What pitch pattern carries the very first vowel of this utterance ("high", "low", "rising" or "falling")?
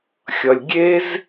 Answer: low